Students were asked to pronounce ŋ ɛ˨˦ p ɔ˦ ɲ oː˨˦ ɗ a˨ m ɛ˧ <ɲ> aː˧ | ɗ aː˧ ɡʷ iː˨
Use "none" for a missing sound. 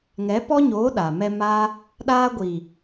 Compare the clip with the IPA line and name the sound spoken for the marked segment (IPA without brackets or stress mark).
m